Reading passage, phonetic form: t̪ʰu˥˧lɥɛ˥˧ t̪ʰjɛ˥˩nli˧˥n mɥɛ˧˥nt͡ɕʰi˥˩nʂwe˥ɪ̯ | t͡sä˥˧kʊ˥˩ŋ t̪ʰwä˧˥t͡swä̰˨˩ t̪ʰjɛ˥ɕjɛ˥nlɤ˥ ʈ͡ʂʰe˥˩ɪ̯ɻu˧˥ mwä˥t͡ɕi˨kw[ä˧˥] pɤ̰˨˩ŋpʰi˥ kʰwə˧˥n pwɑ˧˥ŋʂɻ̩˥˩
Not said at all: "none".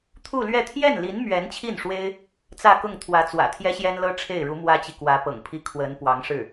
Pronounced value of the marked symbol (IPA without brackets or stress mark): ä˧˥